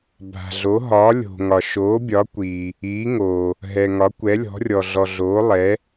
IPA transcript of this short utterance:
bʱ a̤˨ ɮ o˨˦ ɦ ɒː˨˦ lʲ o̤˨ ŋ ɒ˨ ʃ oː˨˦ bʲ ɒ˨˦ kʷ iː˨ | iː˨˦ ŋ oː˨ | ɦ ɛ˨ ŋ ɒ˨˦ kʷ ɛ˨˦ lʲ ɔ̤˨˦ rʲ ɔ˨ ɮ ɔ˨ ɮ oː˨˦ lˠ ɛ˨˦

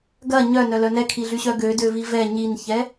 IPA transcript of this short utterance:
ɡ ɐ ɲ œ n œ l œ n ɛ kʰ i ɮ y ɕ œ ɡ ø d ø v i v ɛ ɲ i n ç ɛ

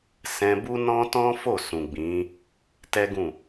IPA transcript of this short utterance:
s ɛ̃˧ b u˦ n ɔ̃˦ t ɔ̃˦ f o˦˨ s ũ˨ ɡ͡b ĩ˨˦ | t ɛ˦ ɡ ũ˦˨

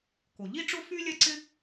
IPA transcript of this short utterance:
k o˩ ʎ i˥ ʈ͡ʂ ʊ˥ f y˥ lʲ ɛ˥ ǀ ɪ˥

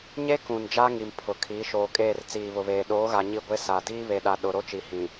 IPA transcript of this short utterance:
ɲ e˦ k ũ˨ n d͡ʒ a˦ ŋ i˨ m pʰ ʊ˨ kʰ iː˨˦ ʃ oː˨ kʼ eː˦˨ r t͡s iː˨ β ʊ˨ β eː˨ ɗ oː˨˦ ɣ a˨ ɲ i˦˨ ɡʷ e˦ s a˨ d iː˦ β e˨ ɗ a˨ ɗ ʊ˨ ɾ o˦ t͡ʃ i˨ h ĩ˨

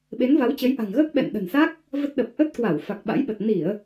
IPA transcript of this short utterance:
ɓ e˨˦ n v a˨˦ w t͡ɕ ə˨˦ j ʔ a̤˨˩ ŋ ɣ əː˦˥ k̚ ɓ ɛ̰˧˨ n ɗ ə̤˨˩ n s a˦˥ k̚ | v ə˦˥ t̚ ɗ ə˨˩ p̚ ʔ ə˦˥ t̚ k w a˧˩ w f a˨˩ k̚ ɓ a̰˧˥ j ɓ ə˨˩ t̚ n i˧˩˨ ə̯

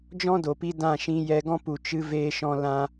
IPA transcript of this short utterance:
d͡ʒ ɔ̃˦ d o˨ p i˧ d ã˦˨ ʃ ĩ˧ j ɛ˧ ɡ ɔ̃˦ p u˨ t͡ʃ ɨ˧ v eː˧ ʃ ɔ̃˧ l ã˧

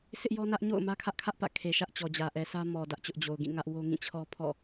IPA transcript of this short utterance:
sʰ ɪ˦ ʔ j ɔ˦ n ä˦ ʔ ɲ o̰˦˨ ʊ̯ m ä˦ kʰ ä˦ ʔ kʰ ä˦ ʔ p ä̰˦˨ kʰ e˨ ʃ ä˦ ʔ t͡ɕ ɔ˨ d͡ʑ ä˨ ʔ ɛ˨ s ä˦ m ɔ˨ d ä˦ ʔ t͡ɕ ʊ˦ ʔ d͡ʑ o˨ ʊ̯ ɡ ĩ˦˨ ŋ ä˦ ʔ w o˦ ŋ ĩ˦˨ t͡ɕʰ ɔ˦ pʰ ɔ̰˦˨

